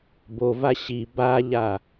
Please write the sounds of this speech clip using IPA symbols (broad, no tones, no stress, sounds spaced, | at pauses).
b o v a ɕ i b a ʎ a